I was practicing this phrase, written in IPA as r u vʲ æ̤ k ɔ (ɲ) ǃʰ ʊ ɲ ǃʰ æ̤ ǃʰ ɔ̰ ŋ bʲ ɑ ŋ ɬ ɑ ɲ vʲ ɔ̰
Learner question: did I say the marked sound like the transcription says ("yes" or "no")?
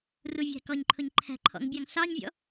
yes